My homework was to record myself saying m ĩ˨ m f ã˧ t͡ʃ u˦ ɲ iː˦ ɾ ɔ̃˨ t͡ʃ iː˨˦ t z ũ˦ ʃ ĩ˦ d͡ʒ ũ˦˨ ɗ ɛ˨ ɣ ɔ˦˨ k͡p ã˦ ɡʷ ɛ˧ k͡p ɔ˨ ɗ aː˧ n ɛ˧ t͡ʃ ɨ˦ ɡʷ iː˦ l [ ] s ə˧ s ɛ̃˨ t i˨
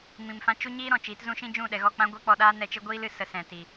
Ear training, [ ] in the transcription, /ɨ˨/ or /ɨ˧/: ɨ˨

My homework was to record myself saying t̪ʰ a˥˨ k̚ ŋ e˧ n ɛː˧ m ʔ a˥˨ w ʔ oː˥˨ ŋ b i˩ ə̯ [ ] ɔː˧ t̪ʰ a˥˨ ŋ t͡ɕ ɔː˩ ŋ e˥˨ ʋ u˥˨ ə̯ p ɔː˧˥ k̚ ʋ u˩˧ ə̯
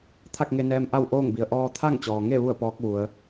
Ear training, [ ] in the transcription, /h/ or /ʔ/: ʔ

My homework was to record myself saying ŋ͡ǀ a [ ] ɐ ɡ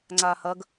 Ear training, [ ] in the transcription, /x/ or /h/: h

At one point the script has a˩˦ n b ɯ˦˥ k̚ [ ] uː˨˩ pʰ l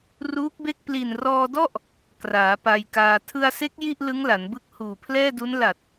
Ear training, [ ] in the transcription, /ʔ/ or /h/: h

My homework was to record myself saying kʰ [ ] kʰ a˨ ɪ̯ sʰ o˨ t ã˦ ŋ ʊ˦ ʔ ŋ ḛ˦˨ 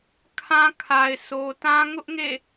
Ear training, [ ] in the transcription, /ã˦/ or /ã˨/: ã˦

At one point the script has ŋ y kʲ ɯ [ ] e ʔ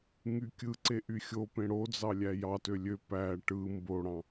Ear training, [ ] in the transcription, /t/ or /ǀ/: ǀ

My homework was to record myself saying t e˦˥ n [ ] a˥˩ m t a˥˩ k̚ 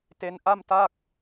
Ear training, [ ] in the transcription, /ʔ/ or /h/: ʔ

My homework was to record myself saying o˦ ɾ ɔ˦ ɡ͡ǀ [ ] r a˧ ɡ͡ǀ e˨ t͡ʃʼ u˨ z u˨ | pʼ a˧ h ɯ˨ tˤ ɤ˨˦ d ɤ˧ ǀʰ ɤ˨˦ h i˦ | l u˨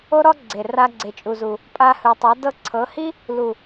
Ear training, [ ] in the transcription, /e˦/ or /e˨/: e˨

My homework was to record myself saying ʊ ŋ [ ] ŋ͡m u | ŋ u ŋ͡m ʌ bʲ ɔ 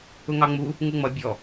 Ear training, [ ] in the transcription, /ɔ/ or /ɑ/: ɑ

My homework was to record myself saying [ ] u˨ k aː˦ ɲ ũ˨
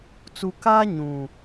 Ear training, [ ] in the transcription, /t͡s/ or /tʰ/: t͡s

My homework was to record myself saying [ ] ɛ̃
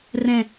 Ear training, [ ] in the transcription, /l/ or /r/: r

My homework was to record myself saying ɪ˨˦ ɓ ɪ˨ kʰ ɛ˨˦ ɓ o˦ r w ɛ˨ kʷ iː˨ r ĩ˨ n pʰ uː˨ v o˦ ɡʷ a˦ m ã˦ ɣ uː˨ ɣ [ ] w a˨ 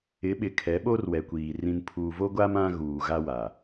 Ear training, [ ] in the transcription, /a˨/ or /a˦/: a˦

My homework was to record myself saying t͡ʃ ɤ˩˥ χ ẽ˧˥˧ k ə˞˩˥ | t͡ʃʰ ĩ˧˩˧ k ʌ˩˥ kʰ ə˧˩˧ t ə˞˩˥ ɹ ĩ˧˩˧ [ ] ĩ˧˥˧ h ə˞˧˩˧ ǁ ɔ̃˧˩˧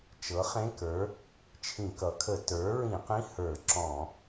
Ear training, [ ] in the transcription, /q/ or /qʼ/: q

